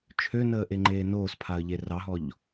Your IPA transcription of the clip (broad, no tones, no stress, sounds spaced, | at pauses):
t͡ʃʰ ø n əː ʔ e ŋ͡ǃ eː n oː s pʰ a ə̯ ʎ e r ɑ ɦ ɔ ʎ